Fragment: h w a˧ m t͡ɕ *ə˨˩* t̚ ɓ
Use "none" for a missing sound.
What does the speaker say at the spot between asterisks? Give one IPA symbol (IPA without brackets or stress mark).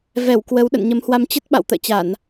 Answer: ə˦˥